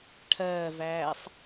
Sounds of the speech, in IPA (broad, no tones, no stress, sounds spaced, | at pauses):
ʈʰ ɜː v æː sˤ